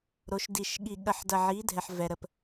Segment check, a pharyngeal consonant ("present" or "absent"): present